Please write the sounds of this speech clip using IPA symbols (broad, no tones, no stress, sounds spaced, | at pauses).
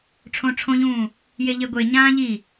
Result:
ʈ͡ʂʰ õ ʈ͡ʂʰ õ ʎ ũː | j e ʎ e ɡʷ e ɲ ãː ʎ i